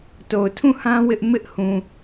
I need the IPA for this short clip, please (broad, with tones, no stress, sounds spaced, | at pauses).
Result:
t o˨ ʊ̯ tʰ ũ˦˨ h ã˦ w ɪ˦ ʔ m ɪ˦ ʔ h ũ˨